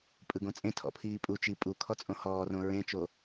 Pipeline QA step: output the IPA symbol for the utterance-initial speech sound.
pʼ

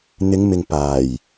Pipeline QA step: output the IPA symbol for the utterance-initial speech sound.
n̪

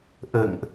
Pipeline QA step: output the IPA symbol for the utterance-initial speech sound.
ʔ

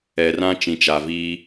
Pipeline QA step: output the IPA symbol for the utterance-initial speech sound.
ɛ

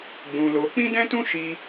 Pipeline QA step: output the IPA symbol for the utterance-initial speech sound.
ɡ͡b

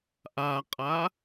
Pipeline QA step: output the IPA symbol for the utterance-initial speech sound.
ʔ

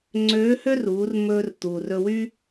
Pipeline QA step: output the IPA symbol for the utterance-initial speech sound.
ŋ͡ǀ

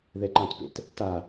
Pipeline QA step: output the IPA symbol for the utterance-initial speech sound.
ð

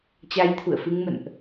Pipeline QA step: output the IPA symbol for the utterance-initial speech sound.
t͡ɕ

